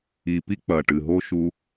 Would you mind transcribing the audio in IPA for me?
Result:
i˨ p i˦ k͡p ɐ˨ ʈ ɨ˨ ɦ o˦ ʃ u˧

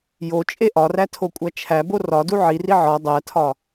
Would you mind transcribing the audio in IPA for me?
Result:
j o t͡ʃʼ e ʔ ɒ r æ tʰ o kʷʼ æ t͡ʃʰ æ b o r ɒ d u ʕ i r i ʕ ɒ dˤ æ tʰ ɒ

